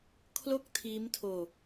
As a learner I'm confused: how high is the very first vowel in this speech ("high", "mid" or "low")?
mid